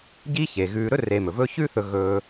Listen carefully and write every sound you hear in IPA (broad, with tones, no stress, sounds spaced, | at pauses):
ɟ iː˦ ç eː˩ ɣ ʉː˨ ɾ ɵ˥ r e˨ m ɵ˩ v ɵ˦ ç ʉ˦ θ ɵ˨ ɣ ɵː˨